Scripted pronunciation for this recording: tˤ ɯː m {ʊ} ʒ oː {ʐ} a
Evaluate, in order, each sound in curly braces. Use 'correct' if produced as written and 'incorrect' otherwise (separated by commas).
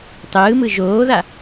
incorrect, incorrect